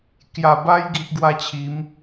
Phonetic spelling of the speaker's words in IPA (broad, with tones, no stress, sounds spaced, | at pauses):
k j a˨˩ b a˦ j ɡ i˦ ʔ ɡ w a˦ t͡ɕʰ i˨˦ m